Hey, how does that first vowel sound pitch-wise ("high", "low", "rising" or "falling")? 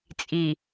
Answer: low